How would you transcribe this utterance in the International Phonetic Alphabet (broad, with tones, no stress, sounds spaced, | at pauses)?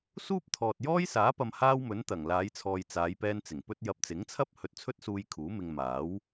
s uː˥ p̚ t̪ʰ ɔː˨ t̚ j ɔː˥ j s aː˨˥ p ɐ˧ m h aː˥ w m ɵ˨˥ n t̪ ɐ˨˩ ŋ l aː˨˧ j t͡sʰ ɔː˨ j t͡s aː˨˧ j p ɛː˧ n t͡s ɪ˨˩ ŋ p ɵ˥ t̚ j ɐ˧ p̚ t͡s ɪ˨˥ ŋ t͡sʰ ɐ˥ p̚ h ɵ˧ t̚ t͡sʰ ɵ˥ t̚ s uː˧ j kʰ uː˨˥ m ɪ˧ ŋ m aː˨˥ w